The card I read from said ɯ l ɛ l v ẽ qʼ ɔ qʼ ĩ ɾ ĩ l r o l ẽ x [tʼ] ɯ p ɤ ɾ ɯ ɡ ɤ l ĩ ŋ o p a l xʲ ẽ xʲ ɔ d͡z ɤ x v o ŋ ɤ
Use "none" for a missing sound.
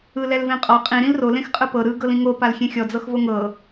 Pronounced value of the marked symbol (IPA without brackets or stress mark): qʼ